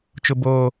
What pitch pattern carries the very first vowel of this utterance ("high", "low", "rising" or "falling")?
low